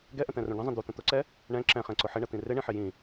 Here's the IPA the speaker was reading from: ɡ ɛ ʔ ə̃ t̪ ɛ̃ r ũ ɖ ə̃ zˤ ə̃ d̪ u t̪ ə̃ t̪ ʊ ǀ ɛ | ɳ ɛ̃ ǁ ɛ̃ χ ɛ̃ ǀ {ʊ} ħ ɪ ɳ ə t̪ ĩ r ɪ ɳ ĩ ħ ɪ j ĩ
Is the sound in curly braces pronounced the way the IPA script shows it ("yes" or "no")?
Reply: yes